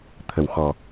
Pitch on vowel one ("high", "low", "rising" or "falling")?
low